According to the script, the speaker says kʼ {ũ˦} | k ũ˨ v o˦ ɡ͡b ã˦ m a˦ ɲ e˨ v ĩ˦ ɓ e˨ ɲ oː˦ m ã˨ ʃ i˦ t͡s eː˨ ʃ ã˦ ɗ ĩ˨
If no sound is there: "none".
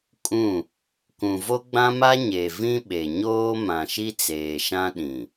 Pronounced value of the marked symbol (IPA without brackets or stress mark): ũ˦˨